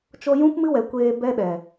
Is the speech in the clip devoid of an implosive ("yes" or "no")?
no